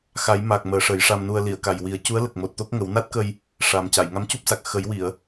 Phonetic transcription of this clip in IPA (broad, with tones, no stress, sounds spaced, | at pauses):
x a˨˩˦ j m a˨˩ k̚ m əː˨˩˦ ʂ ə˨˩˦ j ʂ a˧ m n u˧ ə̯ l i˨˩˨ ə̯ k a˨˩ j w i˨˩˦ ə̯ c u˧˥ ə̯ l ə˨˩ k̚ m o˨˩ t̚ t̪ o˦˥ k̚ ŋ ə˨˩˦ w n a˦˥ t̚ k ə˧ j | ʂ a˨˩ m c a˨˩˨ j ŋ a˧˥ m c u˦˥ p̚ s a˨˩ k̚ x ə˨˩˦ j w i˨˩˨ ə̯